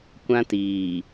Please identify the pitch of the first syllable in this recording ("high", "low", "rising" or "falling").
high